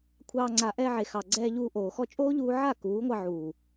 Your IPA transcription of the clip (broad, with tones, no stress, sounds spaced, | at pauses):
kʷʰ ɑː˧ ŋ͡ǀ a˨ ʔ ɛ˧ ʕ e˨ x ɑ˨ ɡ͡ǀ ɛː˧ ʎ uː˧ ʔ oː˨ x ɔ˧ t͡ʃʼ oː˦ ʎ uː˧ ʕ a˦˨ k uː˨˦ ŋʷ ɑ˧ ʕ uː˨